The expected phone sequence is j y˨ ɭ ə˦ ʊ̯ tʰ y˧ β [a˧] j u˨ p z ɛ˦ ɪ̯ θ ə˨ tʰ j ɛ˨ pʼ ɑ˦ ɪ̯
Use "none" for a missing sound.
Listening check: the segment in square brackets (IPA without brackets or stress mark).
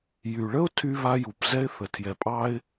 a˧